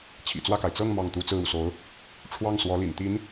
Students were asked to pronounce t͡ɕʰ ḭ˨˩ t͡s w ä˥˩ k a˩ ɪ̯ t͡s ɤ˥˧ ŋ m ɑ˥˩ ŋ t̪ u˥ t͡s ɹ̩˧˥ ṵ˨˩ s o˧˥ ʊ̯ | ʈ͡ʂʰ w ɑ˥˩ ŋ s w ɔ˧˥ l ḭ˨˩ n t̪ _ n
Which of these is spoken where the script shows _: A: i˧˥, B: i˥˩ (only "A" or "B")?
A